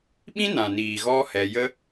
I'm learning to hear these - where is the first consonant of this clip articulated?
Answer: lips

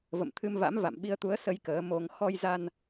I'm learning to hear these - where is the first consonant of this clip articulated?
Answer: lips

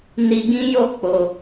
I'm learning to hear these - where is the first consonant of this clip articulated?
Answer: tongue tip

